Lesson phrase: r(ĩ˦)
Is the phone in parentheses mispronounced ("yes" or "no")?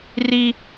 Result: yes